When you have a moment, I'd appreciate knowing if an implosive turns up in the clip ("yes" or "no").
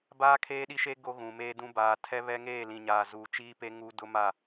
yes